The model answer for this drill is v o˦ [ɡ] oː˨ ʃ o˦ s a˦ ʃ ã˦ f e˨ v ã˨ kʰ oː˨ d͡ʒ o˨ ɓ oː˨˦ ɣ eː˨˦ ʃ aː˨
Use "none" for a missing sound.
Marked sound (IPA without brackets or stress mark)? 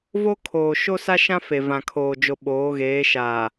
kʰ